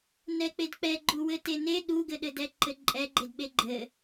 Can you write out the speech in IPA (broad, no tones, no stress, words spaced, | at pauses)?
nɛk͡pedk͡pɛ ɡ͡ǃuwɘtene ɗuɡɘɗɘdɛ ǃɘǃʼɛɡ͡ǃedɓe ɡ͡ǃɘ